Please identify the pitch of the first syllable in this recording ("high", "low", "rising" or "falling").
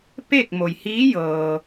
falling